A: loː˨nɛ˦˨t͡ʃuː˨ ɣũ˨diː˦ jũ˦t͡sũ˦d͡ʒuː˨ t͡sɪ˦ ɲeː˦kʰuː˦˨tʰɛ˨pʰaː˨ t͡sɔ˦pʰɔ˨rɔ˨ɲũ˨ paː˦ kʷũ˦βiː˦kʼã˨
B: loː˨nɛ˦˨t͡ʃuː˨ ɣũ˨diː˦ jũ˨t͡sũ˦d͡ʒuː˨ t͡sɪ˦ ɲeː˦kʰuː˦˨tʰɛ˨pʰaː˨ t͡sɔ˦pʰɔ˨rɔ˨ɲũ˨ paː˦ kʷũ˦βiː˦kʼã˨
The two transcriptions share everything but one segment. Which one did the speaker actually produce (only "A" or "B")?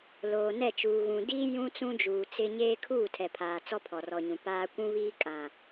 A